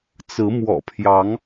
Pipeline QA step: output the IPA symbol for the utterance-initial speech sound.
t͡s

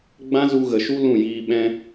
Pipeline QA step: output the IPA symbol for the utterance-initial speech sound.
ɡ͡b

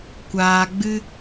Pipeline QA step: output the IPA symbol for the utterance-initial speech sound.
kʷ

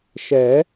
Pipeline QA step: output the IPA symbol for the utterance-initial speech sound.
ʃ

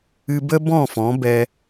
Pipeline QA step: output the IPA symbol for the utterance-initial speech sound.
ɨ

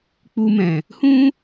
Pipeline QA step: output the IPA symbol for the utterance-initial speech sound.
k͡p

